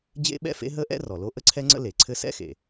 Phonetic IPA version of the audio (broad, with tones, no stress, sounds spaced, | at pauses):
d͡ʑ ḛ˥ ɓ ɛ̰˥ f ḛ˥ ɦ ə˥ ʔ ɛ̰˥ r ɔ˩ l o˥ ʔ ə˥ ǀʰ ɛ˥ ŋ͡ǀ ə̰˥ l e˩ ǀʰ ɘ˥ s ɛ̰˥ x ḛ˩